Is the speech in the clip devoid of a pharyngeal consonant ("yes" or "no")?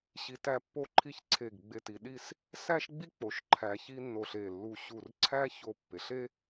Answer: yes